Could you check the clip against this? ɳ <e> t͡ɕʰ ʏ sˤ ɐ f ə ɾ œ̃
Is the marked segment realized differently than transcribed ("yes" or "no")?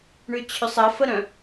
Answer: yes